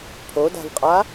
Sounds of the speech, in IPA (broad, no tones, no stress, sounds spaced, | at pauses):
pʰ o d a̤ v qʼ a